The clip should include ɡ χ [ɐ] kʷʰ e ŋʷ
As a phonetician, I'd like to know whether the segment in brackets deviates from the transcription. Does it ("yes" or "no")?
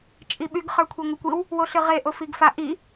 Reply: yes